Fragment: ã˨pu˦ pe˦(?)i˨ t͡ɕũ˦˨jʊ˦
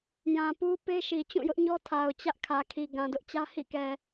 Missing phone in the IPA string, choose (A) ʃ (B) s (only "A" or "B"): A